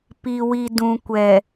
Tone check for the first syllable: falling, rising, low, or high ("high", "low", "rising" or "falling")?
low